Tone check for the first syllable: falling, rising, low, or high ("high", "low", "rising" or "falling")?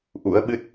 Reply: rising